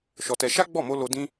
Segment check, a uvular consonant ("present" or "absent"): absent